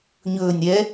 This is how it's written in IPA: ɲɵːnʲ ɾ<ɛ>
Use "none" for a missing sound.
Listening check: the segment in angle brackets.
ɛ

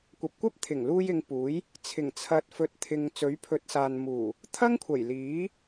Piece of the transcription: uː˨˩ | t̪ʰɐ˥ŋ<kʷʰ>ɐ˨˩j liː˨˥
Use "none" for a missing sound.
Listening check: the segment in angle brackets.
kʷʰ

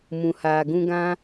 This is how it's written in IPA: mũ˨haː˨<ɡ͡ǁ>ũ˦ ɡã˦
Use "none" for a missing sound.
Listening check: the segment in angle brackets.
ɡ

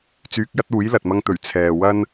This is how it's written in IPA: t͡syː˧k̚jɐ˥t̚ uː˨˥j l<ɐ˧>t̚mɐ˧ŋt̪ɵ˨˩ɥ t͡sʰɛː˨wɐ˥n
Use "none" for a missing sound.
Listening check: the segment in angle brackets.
ɐ˨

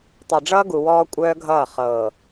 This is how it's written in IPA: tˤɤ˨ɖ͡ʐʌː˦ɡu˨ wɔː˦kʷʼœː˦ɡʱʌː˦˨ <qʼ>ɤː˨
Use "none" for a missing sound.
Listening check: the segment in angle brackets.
χ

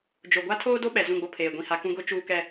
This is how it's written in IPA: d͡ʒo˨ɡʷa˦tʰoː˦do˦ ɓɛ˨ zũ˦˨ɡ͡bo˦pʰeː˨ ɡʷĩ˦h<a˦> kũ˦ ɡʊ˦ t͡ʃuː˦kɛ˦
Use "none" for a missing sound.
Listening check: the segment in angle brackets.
a˦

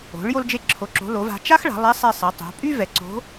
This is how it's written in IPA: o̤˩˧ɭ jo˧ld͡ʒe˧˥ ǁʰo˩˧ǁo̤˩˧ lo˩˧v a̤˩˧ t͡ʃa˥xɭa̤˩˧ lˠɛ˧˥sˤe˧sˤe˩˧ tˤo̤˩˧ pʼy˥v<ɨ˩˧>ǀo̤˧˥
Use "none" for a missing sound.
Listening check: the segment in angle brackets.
ɛ˩˧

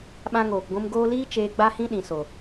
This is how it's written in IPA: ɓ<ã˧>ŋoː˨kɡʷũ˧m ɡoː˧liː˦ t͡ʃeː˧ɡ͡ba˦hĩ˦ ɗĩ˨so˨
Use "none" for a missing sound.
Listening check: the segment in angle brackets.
ã˧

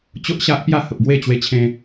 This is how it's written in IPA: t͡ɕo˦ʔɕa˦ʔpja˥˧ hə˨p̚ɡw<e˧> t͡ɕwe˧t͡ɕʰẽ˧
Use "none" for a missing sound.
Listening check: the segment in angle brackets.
e˥˧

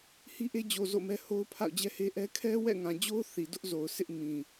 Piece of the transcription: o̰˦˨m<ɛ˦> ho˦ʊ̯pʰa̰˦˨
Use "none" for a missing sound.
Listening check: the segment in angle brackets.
ɛ˦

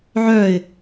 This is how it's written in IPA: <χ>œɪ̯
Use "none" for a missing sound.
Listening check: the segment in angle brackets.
ʕ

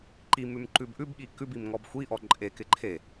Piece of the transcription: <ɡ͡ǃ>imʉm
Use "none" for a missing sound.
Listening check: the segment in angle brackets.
ǃ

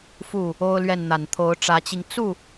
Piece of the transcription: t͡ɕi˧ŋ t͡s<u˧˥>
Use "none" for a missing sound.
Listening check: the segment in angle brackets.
u˥˩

